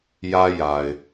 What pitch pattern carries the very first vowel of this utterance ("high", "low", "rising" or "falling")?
high